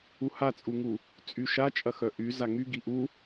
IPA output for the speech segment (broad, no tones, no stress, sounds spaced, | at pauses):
u h a t͡sʼ u ŋ u | t͡sʼ y ʃ a t͡ʃʼ ɐ x œ ʔ y z a ŋ y ɡ i ʔ u